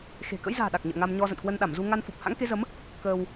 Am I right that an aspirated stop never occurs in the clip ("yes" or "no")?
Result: yes